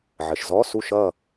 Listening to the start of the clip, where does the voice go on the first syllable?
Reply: low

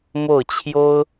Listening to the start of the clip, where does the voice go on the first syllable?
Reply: falling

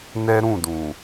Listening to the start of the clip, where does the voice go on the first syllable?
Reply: high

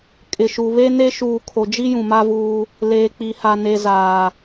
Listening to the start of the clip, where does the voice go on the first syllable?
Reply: low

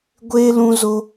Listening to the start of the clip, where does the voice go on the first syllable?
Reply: high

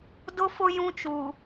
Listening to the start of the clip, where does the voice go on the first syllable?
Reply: high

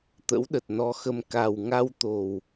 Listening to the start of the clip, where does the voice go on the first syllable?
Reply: rising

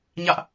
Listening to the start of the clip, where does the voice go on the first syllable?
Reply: high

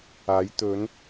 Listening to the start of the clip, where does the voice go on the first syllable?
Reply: rising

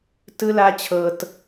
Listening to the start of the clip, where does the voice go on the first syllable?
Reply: high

